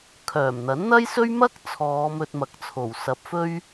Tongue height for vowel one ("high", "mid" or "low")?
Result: mid